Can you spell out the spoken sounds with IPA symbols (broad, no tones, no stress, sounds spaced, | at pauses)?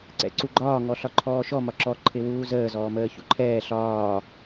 ǀ ɛ̰ ǀ u ɡ͡ǃ ɒː ŋ ɔ ɬ ɒ ǃʰ ɔː ʃ ɔ m ɒ ǁ ɔ ǃʰ ɪ w uː z əː z ɔː m əː ç ṵ ǃʰ ɛː ɬ ɒː